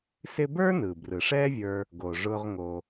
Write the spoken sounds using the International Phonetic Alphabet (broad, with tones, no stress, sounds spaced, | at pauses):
s ɪ˦ b ə˞˥ n ɯ˩ b r ɯ˩ ʂ ɛ˦ vʲ ə˞˨ | ɡ o˩ ʐ ʊ˨ ʁ ŋ o˩